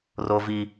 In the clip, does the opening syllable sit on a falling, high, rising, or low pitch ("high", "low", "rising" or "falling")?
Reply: high